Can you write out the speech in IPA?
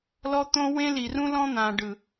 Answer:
l ɔ˦ t̪ õ˦ w ẽ˦ l i˨ r ũ˦ l ɔ̃˦ n̪ ã˨ ɖ ɯ˨

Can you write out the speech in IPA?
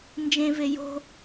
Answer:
n d͡ʒ ẽ v e j o̤

